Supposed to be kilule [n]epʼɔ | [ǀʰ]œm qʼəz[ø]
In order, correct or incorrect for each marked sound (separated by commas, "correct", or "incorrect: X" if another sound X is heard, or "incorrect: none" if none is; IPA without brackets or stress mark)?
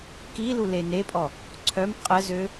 correct, correct, correct